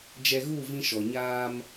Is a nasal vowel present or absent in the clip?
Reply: present